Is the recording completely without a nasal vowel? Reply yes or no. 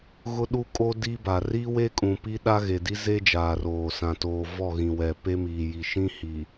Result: no